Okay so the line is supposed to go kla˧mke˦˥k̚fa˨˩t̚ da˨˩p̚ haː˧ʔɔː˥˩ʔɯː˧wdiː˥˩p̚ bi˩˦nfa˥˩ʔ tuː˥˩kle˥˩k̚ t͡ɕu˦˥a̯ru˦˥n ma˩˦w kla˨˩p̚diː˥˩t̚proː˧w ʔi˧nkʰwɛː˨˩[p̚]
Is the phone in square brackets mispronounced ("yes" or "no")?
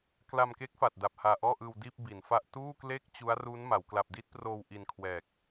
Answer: yes